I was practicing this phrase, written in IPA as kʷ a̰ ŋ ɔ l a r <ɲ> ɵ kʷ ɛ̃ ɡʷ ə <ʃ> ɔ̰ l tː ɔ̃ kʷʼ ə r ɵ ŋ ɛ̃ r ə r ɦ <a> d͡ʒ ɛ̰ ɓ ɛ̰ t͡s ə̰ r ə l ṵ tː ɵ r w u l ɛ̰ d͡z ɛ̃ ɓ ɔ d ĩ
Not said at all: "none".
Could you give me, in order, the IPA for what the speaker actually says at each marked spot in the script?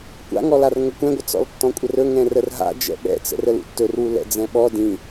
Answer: ŋ, t͡s, a̰

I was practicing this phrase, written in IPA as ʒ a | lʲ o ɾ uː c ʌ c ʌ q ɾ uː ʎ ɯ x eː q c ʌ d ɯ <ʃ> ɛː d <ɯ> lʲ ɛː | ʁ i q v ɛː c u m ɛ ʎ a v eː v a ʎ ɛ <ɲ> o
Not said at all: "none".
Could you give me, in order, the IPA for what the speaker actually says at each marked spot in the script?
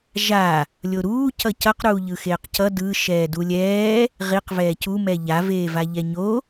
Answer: ʃ, u, ɲ

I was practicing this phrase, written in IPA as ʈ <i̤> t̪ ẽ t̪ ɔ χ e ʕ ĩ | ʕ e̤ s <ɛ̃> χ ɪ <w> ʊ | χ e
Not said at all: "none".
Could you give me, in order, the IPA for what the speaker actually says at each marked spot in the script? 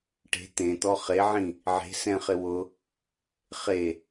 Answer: e̤, ɛ̃, w

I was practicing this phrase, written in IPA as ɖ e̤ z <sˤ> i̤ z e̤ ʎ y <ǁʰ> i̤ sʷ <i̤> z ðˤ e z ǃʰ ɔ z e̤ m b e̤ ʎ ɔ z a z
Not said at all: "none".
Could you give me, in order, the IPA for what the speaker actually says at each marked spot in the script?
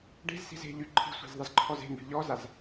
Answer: s, ǃʰ, e̤

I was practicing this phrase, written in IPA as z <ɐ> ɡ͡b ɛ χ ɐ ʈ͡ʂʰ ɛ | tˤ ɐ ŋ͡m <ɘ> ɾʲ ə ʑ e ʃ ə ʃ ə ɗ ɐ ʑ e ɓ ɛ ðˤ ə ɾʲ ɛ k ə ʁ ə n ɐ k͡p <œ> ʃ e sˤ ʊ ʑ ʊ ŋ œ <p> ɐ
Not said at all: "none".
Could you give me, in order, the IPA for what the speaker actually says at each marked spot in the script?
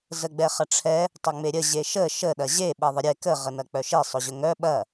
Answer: ə, e, œ, ɓ

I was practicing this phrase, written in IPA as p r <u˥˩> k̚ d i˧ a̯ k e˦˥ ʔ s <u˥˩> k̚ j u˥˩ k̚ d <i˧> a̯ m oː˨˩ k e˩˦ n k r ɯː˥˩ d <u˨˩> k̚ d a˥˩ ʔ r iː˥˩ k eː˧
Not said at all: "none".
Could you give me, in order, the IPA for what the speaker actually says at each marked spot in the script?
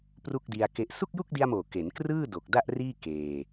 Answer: u˥˩, u˥˩, i˧, o˨˩

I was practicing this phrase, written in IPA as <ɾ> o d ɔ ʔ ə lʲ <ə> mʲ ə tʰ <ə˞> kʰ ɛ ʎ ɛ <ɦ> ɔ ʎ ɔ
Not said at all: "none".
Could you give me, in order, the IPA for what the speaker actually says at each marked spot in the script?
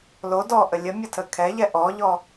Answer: l, ə, ə, ʔ

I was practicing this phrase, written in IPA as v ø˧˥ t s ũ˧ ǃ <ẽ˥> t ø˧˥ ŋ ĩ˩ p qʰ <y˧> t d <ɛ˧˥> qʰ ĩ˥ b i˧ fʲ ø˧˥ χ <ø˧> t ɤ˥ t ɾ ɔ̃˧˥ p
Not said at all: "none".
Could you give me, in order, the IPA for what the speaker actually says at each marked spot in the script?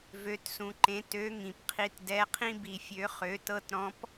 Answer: ẽ˧˥, i˧, ɛ˧˥, ø˧˥

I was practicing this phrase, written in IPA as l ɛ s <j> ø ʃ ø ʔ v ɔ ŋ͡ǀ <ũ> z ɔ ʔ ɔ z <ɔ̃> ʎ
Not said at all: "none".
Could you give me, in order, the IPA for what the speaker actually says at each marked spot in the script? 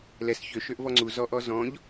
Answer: ç, u, ɔ̃

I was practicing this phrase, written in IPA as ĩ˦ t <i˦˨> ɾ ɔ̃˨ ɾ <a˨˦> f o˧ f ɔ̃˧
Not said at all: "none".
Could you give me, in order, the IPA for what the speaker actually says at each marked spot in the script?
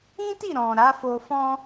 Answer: i˦˨, a˨˦

